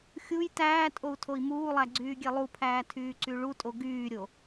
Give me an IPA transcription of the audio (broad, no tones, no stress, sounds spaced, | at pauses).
xʲ u j t æː tʼ o u̯ tʰ o i̯ m uː lˠ æ ɡ͡ǀ yː ɡʲ e lˠ u pʰ æː tʰ yː ǀ y ɭ u tʼ o ɡ yː ɾʲ o